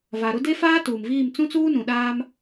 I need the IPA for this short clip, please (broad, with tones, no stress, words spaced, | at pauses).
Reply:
va˨ɾʊ˦ de˦faː˦ tuː˨mviː˦˨m t͡sũ˦t͡suː˦nũ˨ɗaː˦m